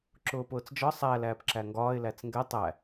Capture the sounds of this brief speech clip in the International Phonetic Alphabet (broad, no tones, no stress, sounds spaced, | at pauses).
ǁ ʊː p ʊː t͡s d͡ʒ ɒ sˤ æ l æː p ǁ æ ŋ ɡ ɒː ɪ̯ l æ t͡s ŋ ɡ ɛ tˤ æ